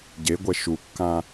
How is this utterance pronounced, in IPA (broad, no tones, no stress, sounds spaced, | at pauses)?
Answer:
ɟ e ɡʷ ɛ ʃ u kː ã